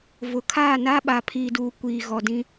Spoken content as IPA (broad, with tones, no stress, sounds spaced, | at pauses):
v ʊ˨ kʰ aː˦˨ n a˦ ɓ a˨ pʰ i˨ d uː˨ kʷ iː˨ ɣ ɔ˨ d ĩ˦